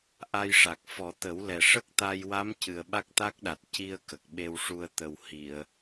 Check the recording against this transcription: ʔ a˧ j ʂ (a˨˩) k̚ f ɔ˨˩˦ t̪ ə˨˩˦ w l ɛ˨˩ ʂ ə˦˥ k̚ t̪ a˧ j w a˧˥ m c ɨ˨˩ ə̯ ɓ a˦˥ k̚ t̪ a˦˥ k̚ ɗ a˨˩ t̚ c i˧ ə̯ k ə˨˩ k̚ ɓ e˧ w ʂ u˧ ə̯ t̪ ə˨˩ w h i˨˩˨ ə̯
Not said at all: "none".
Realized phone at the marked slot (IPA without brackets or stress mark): a˨˩